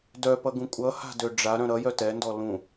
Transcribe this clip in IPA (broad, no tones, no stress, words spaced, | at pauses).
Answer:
dœpʌɡũ kʷʼʌha̤dø ɖ͡ʐaɾœ̃ ɾʌjœ tɛndɔ lũ